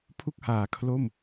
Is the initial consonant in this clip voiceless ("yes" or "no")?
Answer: yes